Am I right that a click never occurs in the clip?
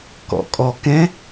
yes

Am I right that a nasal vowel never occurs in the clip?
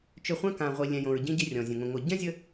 no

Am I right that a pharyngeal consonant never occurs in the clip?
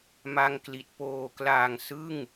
yes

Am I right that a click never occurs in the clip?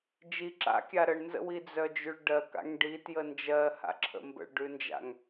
no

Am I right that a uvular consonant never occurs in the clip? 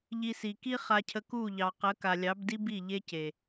no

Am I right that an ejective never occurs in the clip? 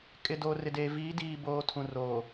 no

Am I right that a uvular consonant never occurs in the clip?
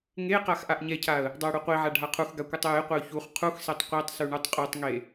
no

